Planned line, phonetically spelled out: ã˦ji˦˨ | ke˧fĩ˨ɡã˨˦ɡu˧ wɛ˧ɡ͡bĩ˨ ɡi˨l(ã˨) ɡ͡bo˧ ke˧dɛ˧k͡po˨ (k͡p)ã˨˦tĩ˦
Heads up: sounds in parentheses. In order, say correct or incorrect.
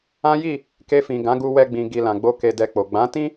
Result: correct, incorrect

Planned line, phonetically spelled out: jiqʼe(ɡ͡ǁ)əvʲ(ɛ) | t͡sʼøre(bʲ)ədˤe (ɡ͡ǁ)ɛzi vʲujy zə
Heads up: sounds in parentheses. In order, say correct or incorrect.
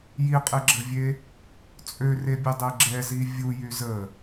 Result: correct, incorrect, correct, correct

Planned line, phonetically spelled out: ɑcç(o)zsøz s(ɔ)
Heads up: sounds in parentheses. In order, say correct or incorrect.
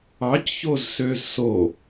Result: correct, incorrect

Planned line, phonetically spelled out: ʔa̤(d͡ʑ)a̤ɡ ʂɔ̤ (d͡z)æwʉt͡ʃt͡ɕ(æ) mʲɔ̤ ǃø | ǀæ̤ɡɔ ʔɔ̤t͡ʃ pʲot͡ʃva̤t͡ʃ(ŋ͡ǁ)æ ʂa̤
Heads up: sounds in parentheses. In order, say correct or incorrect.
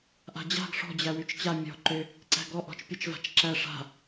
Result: correct, incorrect, incorrect, incorrect

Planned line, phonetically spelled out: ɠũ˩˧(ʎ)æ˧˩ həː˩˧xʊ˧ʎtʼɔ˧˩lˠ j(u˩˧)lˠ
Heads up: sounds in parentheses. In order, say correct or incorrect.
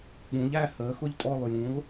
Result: correct, incorrect

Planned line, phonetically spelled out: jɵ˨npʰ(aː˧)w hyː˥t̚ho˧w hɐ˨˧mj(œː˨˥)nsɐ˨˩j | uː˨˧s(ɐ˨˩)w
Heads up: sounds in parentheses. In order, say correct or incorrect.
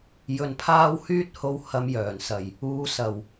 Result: correct, incorrect, correct

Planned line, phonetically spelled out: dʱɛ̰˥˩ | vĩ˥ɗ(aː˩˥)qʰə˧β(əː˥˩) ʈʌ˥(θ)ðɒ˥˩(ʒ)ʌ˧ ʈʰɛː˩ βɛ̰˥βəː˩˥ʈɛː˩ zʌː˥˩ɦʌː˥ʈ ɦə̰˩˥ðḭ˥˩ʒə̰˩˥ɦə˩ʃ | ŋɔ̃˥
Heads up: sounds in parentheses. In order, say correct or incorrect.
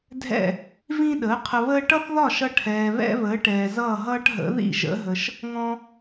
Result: incorrect, incorrect, correct, incorrect

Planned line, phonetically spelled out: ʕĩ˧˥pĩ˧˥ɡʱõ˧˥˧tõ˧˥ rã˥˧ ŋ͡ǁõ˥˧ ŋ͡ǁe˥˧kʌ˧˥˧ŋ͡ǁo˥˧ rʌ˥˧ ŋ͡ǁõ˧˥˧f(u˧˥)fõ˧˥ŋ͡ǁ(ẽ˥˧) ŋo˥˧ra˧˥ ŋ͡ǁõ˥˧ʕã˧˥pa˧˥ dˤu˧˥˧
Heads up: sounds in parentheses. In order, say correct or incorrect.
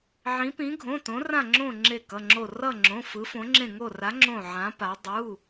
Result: incorrect, correct

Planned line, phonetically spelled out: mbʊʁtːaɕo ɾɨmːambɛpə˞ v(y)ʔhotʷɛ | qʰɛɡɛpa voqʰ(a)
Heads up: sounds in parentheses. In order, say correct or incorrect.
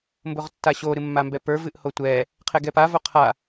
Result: incorrect, correct

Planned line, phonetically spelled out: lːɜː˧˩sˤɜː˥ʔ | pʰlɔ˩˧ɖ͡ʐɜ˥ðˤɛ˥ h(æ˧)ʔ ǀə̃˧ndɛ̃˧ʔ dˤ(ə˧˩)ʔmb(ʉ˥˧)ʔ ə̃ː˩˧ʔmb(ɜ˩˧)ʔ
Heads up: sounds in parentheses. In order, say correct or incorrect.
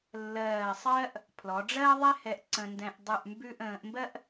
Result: incorrect, incorrect, correct, incorrect

